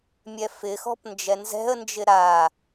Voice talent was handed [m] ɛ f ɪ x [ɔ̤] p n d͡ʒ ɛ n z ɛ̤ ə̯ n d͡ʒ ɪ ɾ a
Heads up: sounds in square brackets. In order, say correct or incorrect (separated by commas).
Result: incorrect, correct